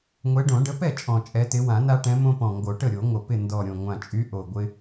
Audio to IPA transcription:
ŋʷ ɛ˨˦ ɖ õ˨˩˦ ɖ ə˨˦ p ɛ˥˩ t͡ʃʼ ɔ̃˨˩ t͡ʃʼ ɛ˨˦ t ɪ˨˦ w ã˨˩˦ n a˦ ʈ ɛ̃˨˦ m õ˦ p ɔ̃˨˩ ŋ ɡ o˨˩˦ ʈ ə˥˩ ɾʲ o˨˩˦ ŋʷ ə˨˩ p ɪ˥˩ n d ɔ˨˩ ɾʲ õ˨˩ ŋʷ ã˨˩ t͡ʃʼ y˨˦ ʔ o˨˩ ɡʷ ɪ˦

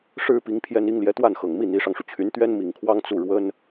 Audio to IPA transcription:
ʂ ɻ̩˥ p i˧˥ ŋ pʰ j ɛ˥ n i˥ ŋ l j ɛ˧˥ t̪ w a˥˩ n x ɤ˨˩ ŋ m i˥˩ n̪ i˧˥ ʂ ɑ˧ ŋ ʂ u˩ t͡ɕʰ y˧˥ n t̪ ɥ ɛ˥ n m i˨˩ ŋ kʰ w ɑ˥ ŋ t͡s u˥˩ ɻ w ə˥ n

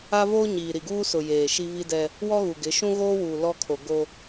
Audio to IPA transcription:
a˦ v oː˦ ɲ iː˨ ɾ i˨ ɡ uː˦ s ʊ˨ j eː˨ ʃ i˦ v i˦ d ɛ˦ | w ɔ˦ ɣ u˨ ɡ ɪ˨˦ ʃ ũ˦ ɣ oː˦ w uː˨ l ɔ˦ kʰ o˨ ɡ o˦

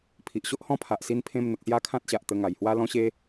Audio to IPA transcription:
pʰ i˨ ʔ ɕ o˦ ʔ h ɔ̃˦ pʰ a˨ ʔ s i˧ n pʰ ẽ˧ m n̪ ə˨ k̚ s j a˥˧ kʰ ã˦ t̚ ɕ a˨ ʔ t̪ ə˧ ŋ a˨˩ j h w a˦ l ɔ̃˦ ɕ e˦

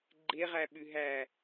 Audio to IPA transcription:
ɡ͡ǃ e ʁ æ ɓ ʉ ɦ æ

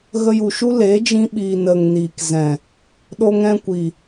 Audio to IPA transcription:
ɣ ə˧ j u˨ ʃ u˦ l eː˨˦ d͡ʒ ĩ˧ ɓ iː˨ n ə˨ ŋ n iː˨ k z ɛ̃˨ | ɗ o˧ ŋ ɛ̃˧ kʷ i˨

